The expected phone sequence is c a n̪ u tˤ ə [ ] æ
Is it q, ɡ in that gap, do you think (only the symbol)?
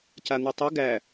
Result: ɡ